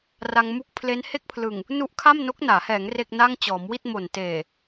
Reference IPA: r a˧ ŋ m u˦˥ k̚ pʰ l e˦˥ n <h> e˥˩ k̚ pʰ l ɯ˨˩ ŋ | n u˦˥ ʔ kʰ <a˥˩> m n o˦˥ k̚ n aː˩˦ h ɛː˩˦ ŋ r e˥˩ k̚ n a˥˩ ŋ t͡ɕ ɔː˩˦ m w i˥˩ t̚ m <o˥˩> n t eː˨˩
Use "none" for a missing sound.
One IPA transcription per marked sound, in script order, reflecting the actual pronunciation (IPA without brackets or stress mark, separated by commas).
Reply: h, a˥˩, o˨˩